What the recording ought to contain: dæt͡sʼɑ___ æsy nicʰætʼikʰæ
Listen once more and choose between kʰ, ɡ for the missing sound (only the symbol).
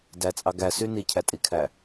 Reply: ɡ